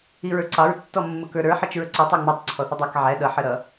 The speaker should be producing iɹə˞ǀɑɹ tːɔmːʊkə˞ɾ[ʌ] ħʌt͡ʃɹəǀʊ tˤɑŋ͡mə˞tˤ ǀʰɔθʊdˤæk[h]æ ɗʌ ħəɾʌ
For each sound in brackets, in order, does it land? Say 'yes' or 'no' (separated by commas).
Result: no, no